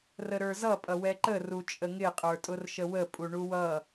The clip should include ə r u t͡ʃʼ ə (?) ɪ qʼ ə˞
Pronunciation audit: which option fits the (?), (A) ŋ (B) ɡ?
A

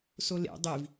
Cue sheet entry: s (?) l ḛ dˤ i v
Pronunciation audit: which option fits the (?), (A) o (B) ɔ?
A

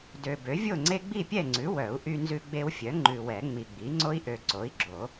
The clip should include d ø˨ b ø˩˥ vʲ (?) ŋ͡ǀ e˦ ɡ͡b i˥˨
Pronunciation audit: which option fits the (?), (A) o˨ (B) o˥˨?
B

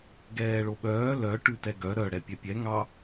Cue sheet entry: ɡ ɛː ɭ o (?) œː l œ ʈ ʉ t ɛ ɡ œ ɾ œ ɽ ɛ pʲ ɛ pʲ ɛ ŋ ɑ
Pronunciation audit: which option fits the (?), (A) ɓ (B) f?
A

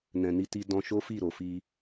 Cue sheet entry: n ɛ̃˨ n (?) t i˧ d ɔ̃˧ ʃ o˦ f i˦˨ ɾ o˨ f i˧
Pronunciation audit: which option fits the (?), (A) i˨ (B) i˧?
B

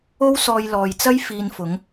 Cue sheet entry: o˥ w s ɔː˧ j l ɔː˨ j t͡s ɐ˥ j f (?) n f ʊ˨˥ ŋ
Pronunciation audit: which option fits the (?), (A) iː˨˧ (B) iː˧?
B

